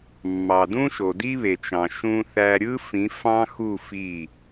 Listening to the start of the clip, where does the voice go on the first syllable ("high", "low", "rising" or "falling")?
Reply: low